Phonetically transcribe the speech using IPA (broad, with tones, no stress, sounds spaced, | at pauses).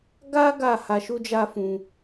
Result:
ɡ a˦ ɡ a˦˨ h a˧ ʃ u˦ d͡ʒ a˦ f ũ˧